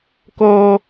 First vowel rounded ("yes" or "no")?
yes